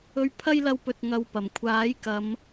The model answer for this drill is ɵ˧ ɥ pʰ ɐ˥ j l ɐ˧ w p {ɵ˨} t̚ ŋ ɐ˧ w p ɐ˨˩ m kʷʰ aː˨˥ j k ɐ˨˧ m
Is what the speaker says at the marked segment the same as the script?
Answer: yes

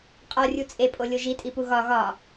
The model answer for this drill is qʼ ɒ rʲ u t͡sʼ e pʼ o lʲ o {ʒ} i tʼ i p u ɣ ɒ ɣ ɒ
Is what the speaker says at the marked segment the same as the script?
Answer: yes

